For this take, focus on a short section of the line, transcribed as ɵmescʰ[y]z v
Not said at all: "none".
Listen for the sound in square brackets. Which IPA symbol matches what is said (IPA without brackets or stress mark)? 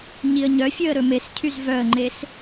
y